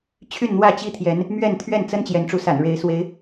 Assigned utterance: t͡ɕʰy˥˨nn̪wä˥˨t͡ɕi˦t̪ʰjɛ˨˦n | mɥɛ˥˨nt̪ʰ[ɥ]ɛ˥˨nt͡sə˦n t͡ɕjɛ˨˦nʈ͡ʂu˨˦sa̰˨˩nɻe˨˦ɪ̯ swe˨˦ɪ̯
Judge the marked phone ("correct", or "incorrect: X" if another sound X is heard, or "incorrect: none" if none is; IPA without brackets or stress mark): correct